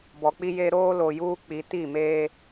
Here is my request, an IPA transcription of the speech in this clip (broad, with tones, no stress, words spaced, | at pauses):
bɔ˨k͡pi˦je˦ ɾoː˦lo˨ juː˦k͡pi˨˦ ti˦˨meː˦